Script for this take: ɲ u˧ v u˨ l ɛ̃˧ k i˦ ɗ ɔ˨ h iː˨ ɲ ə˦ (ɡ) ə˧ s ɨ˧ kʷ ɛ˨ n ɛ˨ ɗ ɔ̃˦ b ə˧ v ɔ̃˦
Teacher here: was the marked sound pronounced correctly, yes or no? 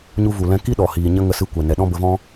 no